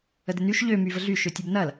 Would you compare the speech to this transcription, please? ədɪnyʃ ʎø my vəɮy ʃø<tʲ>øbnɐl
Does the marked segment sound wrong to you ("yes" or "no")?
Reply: no